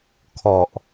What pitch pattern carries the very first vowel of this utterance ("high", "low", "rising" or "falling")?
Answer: low